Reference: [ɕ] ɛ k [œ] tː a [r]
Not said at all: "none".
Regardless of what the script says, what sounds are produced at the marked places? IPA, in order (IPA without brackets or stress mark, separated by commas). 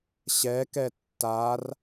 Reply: ɕ, ɛ, r